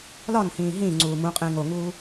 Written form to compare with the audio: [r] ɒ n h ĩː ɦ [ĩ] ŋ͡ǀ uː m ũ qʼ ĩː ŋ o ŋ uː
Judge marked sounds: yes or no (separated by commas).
no, yes